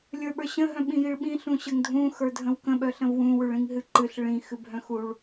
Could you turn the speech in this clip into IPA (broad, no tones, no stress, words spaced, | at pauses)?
lʲə˞ɓə˞ɕə̃ ɦœ̃ɓĩjiɭɓĩ ɬũɕəŋdʱũ xə˞dʱə̃wkə̃ ɓœɬə̃vwũ wʉɭĩŋɦɨǃɨɬ ɭĩ xɨbʱœ̃xuɭ